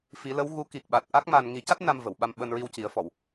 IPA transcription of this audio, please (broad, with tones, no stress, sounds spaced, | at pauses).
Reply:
f i˨˩˦ l ə˧˥ w ɣ u˧˥ k i˨˩ k̚ ɓ a˨˩ t̚ ʔ a˦˥ k̚ m a˧ n ŋ i˨˩˦ c a˦˥ t̚ n a˧ m v ə˨˩˨ w ɓ a˧ m ɓ əː˧ n ɹ i˧ w c i˨˩˦ ə̯ f ɔ˨˩˨ w